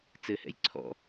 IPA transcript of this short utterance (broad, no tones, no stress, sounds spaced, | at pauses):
t͡s ɘ h ɛ̰ j ǀʰ ɔ̰